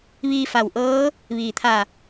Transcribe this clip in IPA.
ʋ iː˧ f a˧˩ w ʔ ɤː˧˥ | ʋ iː˩ t̪ʰ a˧˩

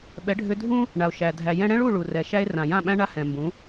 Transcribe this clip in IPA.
ɓ ɛ˩˥ ɖʱ ʏ˧ dʱ ũ˥ | ɳ a˩ o̯ ʃ æ˩ dʱ æ˩ j ɛ̃˧ ɽ ɛ̃˥ ɭ u˥˩ ɭ u˩ r ɛ˩ ʃ æ˥ e̯ r ã˩ j ã˥˩ ɓ æ̃˥ ɳ a˥ h ɛ̃˩ m b ũ˩˥

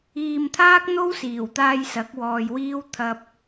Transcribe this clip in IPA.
iː˨ m t̪ʰ aː˥ k̚ n̪ o˥ w s iː˨˩ w t̪ aː˧ j s ɐ˨˥ k̚ w ɔː˨ j w iː˥ w t̪ʰ ɐ˧ p̚

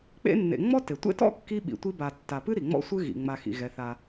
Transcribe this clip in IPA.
k͡p ḛ˦ nː ḛ˨ ŋ͡m ɔ˥ t e˩ tʷ ḛ˥ t ɔ̰˥ kː i˥ ɓ ḭ˨ tʷ i˦ b a˨ tː a˨ p ɨ˥ ɾ i˩ ŋ͡m ɔ̰˦ sʷ ɨ˦ ɣ ḭ˩ ŋ͡m a˨ x ḭ˩ ɣ ɛ˩ θ a˨

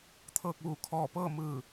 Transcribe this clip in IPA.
t̪ʰ ɤː˥˨ k̚ ʋ uː˧˩ kʰ ɔː˧˩ p ɤː˥˨ m ɯː˧˩

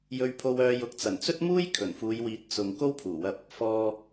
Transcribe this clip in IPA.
j ɵ˧ ɥ pʰ o˧ w œː˧ j ʊ˨˥ k̚ t͡s ɐ˨˩ n t͡s ɵ˥ t̚ m uː˥ j kʰ ɵ˨˩ n f uː˨˧ j w iː˨˥ t̚ t͡s ʊ˨ ŋ k o˥ w pʰ uː˨˩ w ɐ˧ p̚ | f ɔː˨

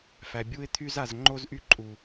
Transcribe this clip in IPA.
f æ˨ bʲ u˧ ɪ̯ t̪ʰ y˧ z a˨ z ŋ͡ǃ o˧ z ʔ y˧ ǃʼ u˨

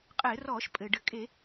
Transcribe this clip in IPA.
qʼ ɘː˧˩˧ r ɔː˧˩˧ ʃ pʼ ɘː˩ ɖ ɘ˧˩˧ kʼ e˧˩˧

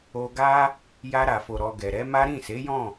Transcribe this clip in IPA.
o˧ ɡ a˦ | j a˧ ɾ a˨ f o˨ ɾ ɔ˨ ɡ ɛ˨ ɾ ɛ˨˦ m a˦ ɾ ĩ˦˨ s e˨˦ j ɔ̃˦˨

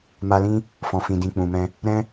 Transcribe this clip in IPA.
m a˧ l ĩ˦ | f ɔ̃˨ f ĩ˨ d ĩ˨ k͡p ũ˨ m ɛ̃˧ | ɾ ɛ̃˦

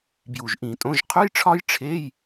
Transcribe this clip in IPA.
b j u˨˩ ʒ ʔ ĩ˧˩˧ tʼ õ˧˥˧ ʒ qʰ u˧˥˧ j ʈ͡ʂʰ ɒ˦˥ j ʈ͡ʂʰ e˧˥˧ j

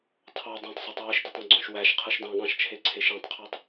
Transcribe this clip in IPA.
tʰ ɑ dˤ õ tˤ sˤ e tˤ w ɯ ʃ d i tˤ õ ɡ͡ǀ õ ʃ w æ ʃ qʰ ɯ ʃ d ɑ̃ ɠ ɑ̃ ʃ t͡ʃʰ e ǀʰ e ʃ ĩ tˤ qʰ e tˤ

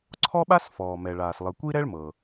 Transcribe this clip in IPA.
ǀʰ ɔ˥ ɓ a˥ s f ɔː˩ m ɛ˩ ɭ aː˩ s lˠ ɯ˩ kʷ i˥ ɾ ɛ˥ ɭ m ɤ˩

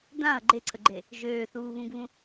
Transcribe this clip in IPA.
d ã ɐ̯ ɡ͡ǃ e ǀʰ ə ɡ͡ǃ e | ʒ øː θ uː β ũ ɡ β ũ

